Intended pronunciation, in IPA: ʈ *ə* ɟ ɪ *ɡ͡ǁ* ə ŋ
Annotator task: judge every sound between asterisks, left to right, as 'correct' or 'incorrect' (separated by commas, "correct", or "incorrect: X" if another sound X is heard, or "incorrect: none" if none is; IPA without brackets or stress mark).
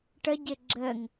correct, correct